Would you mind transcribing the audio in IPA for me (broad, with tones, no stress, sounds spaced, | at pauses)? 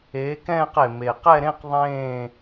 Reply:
eː˨˥ k ɛ̃ː˥˧ q e˨˩ m e˨˩ q ɛ˥˧ ɾ ẽ˥˧ q ðˤ ẽː˥˧